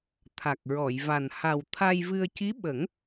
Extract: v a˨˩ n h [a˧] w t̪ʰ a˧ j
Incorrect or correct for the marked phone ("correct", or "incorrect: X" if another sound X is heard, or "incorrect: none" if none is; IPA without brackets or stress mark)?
incorrect: a˨˩